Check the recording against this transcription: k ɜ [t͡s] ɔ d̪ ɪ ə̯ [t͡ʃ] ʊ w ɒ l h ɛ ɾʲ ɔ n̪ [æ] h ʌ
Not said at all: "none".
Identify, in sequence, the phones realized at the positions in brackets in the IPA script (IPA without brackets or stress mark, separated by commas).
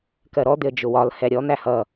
ɾ, d͡ʒ, æ